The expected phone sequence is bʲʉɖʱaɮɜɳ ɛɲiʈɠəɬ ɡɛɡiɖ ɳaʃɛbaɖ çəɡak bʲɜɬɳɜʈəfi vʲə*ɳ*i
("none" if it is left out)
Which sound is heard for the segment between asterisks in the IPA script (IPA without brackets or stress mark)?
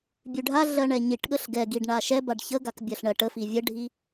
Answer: ɖʱ